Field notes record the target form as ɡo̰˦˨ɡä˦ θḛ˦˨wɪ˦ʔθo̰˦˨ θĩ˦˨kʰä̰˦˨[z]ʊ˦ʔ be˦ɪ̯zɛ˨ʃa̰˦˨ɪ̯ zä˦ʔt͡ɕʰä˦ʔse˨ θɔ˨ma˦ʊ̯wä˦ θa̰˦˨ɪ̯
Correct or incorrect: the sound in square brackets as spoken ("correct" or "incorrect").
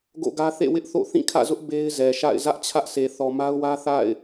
correct